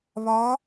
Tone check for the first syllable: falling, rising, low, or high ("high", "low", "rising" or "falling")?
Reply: rising